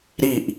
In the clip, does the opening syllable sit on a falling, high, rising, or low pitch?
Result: falling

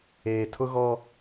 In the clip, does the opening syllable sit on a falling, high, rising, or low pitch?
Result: low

